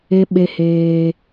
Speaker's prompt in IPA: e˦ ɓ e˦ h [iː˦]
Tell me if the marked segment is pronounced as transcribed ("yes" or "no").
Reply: no